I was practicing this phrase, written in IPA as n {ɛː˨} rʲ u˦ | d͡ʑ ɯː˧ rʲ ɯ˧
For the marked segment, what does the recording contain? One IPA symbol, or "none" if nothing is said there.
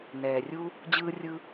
ɛː˨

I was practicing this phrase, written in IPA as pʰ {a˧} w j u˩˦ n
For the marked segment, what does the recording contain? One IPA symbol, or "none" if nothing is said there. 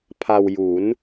a˧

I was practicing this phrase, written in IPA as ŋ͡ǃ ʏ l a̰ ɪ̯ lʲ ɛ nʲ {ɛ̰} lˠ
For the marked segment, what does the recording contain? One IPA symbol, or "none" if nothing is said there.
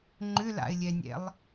ɛ̰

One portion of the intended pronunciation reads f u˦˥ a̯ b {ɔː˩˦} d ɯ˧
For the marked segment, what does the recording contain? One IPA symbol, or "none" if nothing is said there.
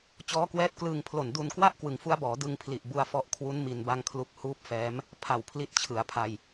ɔː˩˦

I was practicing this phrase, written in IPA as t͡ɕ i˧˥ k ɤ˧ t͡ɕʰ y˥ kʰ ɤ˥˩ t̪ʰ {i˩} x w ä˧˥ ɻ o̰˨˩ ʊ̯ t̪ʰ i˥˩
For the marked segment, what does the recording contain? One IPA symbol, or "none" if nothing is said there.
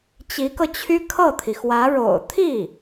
i˩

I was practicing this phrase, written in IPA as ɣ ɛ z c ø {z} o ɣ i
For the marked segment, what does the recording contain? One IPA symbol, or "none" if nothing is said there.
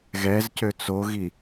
t͡s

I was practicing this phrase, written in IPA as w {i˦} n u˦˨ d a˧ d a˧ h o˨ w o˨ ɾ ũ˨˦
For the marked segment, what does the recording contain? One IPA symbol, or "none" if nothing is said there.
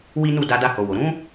i˦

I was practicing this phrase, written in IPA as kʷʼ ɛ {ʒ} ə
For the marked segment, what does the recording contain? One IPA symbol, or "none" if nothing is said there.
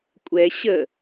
ɕ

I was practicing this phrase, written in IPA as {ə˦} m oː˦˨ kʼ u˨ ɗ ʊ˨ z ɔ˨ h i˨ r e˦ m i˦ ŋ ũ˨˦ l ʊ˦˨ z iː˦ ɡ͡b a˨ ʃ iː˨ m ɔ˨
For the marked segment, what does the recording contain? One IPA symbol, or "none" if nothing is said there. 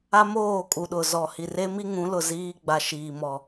a˦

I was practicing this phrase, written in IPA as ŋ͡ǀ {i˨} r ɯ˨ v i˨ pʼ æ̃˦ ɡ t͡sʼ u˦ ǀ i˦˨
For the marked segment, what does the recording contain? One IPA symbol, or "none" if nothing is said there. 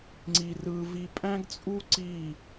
i˨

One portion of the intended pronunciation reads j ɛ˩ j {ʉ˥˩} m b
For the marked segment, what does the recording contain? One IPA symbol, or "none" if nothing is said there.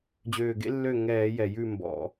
ʉ˥˩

